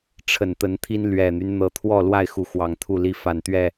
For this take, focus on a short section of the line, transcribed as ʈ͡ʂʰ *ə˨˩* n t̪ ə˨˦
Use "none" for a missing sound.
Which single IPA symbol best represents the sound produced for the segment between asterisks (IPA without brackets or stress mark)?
ə˨˩